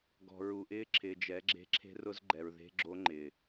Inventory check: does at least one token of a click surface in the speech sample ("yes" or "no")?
yes